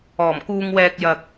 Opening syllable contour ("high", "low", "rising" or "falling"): low